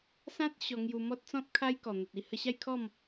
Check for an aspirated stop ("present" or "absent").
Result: present